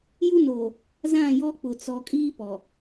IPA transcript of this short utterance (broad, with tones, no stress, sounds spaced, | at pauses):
j u˦ n oː˨ | z ã˦˨ j ɔ˦ k͡p ʊ˨ t͡s ɔ˨ kʼ iː˦ p ɔ˨